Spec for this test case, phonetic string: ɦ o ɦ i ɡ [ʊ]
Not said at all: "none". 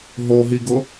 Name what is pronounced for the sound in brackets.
ʊ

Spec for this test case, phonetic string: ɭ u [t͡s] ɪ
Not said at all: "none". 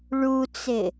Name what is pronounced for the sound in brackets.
t͡s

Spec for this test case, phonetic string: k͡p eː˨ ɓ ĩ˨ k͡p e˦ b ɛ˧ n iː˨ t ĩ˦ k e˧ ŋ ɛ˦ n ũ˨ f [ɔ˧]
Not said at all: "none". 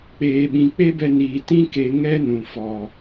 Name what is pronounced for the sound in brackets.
ɔ˨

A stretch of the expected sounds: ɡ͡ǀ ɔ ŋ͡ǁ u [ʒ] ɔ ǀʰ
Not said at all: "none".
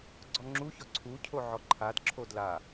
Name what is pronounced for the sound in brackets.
ç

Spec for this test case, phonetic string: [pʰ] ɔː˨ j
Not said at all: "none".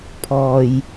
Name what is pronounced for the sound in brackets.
pʰ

